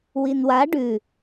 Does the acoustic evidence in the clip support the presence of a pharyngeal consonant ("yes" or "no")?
no